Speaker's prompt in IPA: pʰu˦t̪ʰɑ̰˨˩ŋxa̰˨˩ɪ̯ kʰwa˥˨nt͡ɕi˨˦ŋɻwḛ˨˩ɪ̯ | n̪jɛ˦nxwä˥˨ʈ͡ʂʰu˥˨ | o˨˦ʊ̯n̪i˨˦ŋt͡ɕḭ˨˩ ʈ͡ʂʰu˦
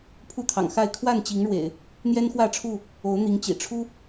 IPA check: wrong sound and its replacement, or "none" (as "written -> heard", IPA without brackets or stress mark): a̰˨˩ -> a˥˨